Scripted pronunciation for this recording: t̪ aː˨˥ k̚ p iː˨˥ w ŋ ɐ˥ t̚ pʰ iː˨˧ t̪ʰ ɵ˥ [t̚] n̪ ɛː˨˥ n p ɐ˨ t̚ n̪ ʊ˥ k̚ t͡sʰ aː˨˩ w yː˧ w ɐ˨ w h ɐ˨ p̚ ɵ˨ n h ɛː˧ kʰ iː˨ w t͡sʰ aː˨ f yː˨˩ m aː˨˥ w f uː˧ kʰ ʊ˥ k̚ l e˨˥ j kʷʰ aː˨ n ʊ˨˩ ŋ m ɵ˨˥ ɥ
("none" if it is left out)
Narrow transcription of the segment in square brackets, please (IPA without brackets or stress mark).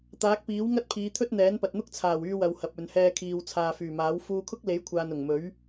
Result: t̚